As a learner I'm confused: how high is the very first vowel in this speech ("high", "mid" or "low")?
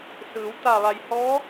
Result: high